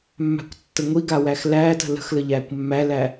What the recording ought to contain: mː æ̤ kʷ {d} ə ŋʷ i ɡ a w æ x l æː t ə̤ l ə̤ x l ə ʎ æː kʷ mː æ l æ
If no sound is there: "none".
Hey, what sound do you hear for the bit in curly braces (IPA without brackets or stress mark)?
tː